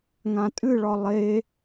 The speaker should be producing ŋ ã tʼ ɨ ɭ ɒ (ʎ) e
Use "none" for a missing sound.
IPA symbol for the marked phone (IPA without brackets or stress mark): lˠ